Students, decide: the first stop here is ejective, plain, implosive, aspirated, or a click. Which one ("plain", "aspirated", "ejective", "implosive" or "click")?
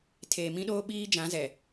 aspirated